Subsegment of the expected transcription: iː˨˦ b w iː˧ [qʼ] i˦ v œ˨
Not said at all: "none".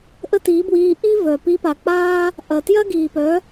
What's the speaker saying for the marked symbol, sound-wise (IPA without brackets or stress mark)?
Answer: ʔ